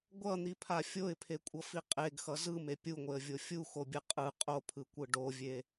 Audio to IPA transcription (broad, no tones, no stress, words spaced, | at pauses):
ɡʷʌn̪ipʰa fʲoɪ̯pʰekʷʼʌfi qʼeɡxʌ zɯme pʲuŋʷeə̯vʲo fʲuxobʲɯ qʼɯ qʼopʰɯkʷɯ ɖovʲe